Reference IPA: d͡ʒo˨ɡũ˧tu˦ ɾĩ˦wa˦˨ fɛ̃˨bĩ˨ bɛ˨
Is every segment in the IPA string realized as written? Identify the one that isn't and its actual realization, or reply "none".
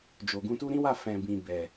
none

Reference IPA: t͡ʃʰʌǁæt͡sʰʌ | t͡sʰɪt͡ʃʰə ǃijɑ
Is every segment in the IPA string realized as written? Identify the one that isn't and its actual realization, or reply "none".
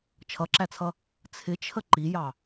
none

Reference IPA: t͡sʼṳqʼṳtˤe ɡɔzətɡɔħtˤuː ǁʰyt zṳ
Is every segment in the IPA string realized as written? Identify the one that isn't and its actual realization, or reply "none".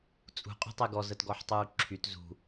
none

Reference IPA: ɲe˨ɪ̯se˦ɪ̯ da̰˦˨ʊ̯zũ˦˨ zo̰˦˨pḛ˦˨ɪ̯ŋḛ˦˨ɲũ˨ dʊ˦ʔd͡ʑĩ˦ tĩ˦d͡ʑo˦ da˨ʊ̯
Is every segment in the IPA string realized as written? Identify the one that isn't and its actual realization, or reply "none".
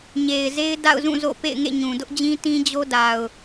s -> z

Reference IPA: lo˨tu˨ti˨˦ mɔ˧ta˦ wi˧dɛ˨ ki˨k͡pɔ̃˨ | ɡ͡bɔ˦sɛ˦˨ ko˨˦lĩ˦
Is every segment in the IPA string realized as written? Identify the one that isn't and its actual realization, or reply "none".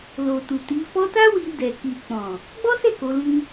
m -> f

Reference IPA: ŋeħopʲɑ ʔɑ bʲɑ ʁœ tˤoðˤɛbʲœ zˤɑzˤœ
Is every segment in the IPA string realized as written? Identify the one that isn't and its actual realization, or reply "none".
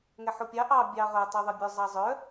e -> ɛ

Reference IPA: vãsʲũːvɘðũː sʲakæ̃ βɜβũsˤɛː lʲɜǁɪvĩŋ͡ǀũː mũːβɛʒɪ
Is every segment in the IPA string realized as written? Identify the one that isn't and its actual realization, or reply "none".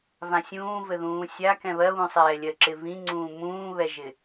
æ̃ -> ɛ̃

